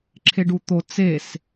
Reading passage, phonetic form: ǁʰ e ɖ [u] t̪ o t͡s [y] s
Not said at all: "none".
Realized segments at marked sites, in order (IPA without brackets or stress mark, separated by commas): u, e